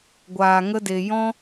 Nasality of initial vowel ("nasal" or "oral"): oral